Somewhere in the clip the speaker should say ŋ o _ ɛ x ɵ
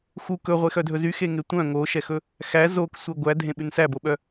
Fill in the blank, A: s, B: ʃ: B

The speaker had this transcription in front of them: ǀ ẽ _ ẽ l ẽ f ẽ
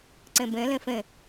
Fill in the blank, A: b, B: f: A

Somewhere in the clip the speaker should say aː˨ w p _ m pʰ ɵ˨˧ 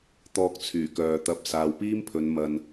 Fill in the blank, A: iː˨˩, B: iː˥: B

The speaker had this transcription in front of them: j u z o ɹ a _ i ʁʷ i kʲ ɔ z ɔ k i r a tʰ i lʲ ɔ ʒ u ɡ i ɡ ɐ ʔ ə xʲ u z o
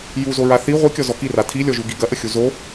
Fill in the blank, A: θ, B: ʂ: A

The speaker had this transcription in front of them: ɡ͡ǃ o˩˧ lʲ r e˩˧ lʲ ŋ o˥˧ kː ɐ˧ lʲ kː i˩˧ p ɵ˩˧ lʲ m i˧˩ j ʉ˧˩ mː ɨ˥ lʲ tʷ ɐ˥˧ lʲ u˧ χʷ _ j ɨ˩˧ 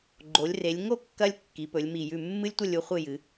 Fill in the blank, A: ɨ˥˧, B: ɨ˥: A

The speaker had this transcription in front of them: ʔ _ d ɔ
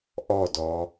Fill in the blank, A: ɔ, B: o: A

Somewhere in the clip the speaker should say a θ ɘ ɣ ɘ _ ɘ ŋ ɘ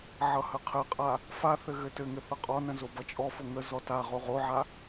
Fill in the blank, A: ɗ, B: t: B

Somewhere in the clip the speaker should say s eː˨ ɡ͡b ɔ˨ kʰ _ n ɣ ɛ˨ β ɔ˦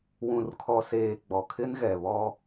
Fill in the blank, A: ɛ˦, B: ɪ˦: B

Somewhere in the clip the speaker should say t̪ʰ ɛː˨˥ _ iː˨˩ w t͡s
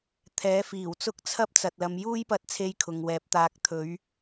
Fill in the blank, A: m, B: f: B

